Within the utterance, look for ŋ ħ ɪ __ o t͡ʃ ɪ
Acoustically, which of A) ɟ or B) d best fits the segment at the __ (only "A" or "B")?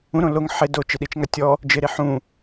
B